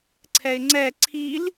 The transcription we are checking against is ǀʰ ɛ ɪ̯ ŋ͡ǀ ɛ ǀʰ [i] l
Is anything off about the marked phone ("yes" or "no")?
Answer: no